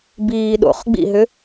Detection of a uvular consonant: present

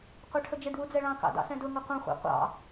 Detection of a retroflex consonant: present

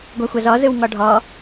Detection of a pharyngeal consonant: absent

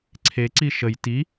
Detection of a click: present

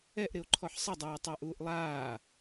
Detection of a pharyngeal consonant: present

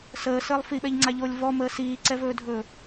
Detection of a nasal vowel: absent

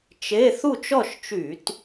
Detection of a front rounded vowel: present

